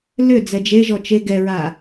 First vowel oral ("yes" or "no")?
yes